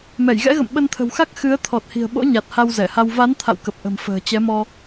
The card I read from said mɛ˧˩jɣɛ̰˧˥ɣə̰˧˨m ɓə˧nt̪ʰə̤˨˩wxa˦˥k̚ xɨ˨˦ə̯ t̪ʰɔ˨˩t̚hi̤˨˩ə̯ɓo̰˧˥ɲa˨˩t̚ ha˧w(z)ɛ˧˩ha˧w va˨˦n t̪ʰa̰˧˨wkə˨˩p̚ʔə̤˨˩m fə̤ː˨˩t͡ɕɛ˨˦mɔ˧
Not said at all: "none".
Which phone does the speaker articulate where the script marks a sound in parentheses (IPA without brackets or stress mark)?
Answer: z